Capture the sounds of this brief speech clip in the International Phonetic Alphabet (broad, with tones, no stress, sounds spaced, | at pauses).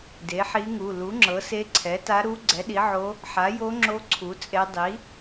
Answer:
d e˩˥ ħ i˧˥ ŋ u˩˧˩ l u˩˥ ŋ͡ǁ ɤ˩˥ s e˧˥ ǀʰ ɛ˩˥ t a˧˥ ɾ u˧˥ ɡ͡ǀ ɛ˩˥ ɗ i˩˥ ʕ o˧˥ | ħ a˩˥ j o˧˥ ŋ͡ǁ o˧˥ ǀʰ u˩˥ t͡sʼ e˧˥ dˤ i˩˥